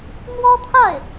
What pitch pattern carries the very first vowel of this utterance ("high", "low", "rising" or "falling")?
high